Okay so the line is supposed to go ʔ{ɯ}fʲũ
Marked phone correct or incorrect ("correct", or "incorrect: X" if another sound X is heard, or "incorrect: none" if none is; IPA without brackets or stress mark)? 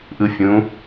correct